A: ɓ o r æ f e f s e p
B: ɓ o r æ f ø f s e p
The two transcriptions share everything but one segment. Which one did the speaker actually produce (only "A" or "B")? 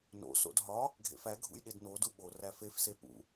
A